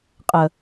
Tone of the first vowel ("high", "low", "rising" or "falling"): low